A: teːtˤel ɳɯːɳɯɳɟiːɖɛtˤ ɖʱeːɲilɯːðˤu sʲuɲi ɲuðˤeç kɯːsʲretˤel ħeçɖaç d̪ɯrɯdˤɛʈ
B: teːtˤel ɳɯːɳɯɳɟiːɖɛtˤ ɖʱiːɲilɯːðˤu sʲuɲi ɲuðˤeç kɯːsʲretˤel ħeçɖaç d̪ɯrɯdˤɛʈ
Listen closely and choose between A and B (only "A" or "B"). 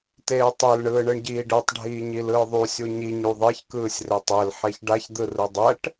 B